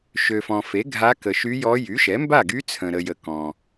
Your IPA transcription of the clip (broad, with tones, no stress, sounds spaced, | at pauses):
ʃ ø˨ f ɔ̃˨ f e˩˥ ɡʱ a˧˥ k ə˨ ʃ y˧˥ j ɔ˧˥ j y˩˥ ʃ ɛ˩˥ m b a˥˩ ɡ y˧˥ t͡sʰ ə̃˨ ɾ ə˨ j ə˨ k ɔ̃˨